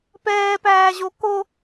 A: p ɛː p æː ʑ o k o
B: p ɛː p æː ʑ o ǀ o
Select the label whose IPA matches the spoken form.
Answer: A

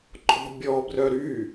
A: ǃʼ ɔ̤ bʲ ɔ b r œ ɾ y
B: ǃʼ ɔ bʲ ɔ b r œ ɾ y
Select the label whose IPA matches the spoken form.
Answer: A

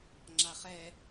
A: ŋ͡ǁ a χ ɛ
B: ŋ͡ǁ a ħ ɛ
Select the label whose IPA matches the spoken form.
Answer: A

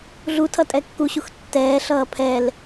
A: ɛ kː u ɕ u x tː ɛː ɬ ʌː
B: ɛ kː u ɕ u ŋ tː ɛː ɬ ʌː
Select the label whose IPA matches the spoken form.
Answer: A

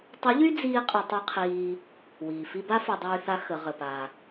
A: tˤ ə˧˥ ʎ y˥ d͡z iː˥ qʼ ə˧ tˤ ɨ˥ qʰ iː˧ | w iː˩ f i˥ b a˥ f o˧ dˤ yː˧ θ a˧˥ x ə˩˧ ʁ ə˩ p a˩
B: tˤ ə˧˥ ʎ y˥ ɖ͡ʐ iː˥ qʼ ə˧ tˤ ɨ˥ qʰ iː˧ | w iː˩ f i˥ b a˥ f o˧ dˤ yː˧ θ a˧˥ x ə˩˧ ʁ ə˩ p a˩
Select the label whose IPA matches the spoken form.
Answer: A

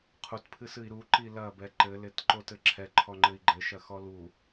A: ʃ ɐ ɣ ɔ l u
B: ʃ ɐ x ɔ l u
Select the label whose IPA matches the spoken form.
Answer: B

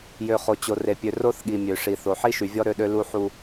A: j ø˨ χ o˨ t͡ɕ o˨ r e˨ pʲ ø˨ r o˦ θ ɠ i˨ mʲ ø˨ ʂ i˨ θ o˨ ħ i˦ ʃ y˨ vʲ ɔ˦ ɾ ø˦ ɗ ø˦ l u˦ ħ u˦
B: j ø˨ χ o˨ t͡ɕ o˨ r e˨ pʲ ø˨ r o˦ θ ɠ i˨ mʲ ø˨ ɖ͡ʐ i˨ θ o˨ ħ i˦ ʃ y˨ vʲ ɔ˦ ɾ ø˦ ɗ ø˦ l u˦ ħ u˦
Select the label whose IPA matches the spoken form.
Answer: A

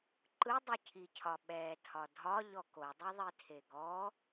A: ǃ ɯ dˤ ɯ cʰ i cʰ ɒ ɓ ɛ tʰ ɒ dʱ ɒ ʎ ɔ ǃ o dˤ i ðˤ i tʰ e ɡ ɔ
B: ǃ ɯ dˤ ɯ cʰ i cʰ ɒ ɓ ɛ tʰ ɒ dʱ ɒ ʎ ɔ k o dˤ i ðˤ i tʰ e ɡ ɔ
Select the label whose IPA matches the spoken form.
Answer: B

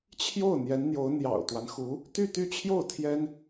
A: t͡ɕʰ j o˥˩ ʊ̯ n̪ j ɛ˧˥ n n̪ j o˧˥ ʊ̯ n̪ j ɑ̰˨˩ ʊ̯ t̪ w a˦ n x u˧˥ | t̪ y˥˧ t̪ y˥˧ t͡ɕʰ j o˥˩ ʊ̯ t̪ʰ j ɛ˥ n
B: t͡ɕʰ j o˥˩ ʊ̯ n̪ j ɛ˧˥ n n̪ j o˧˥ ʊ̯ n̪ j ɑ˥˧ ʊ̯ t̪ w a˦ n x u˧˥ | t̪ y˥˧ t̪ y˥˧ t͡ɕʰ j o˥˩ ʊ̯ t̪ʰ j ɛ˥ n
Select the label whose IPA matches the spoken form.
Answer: A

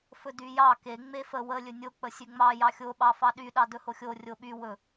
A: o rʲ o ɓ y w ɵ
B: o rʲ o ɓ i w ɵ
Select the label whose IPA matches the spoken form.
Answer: A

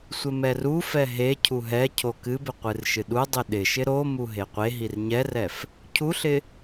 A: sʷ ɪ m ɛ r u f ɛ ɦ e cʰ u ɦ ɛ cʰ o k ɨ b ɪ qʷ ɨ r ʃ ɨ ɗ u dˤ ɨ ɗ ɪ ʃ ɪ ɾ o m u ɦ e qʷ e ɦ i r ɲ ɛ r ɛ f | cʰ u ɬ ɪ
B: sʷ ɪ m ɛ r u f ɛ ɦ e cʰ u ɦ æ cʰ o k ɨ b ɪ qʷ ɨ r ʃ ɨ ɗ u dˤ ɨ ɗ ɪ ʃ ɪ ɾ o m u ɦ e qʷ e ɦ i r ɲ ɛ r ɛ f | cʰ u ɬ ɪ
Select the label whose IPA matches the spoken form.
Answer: A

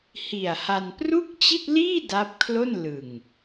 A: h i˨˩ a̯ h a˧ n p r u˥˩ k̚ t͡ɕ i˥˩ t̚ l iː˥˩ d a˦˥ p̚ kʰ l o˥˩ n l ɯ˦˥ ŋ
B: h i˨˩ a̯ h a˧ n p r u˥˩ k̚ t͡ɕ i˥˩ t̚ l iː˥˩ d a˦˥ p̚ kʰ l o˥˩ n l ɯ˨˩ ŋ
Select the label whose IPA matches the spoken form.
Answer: B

